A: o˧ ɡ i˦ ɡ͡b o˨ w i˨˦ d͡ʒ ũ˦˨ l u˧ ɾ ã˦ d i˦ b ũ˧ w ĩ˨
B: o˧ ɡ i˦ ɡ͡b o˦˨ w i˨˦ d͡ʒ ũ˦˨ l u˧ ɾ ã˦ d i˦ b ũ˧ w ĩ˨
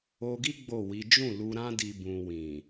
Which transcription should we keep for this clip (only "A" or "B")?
B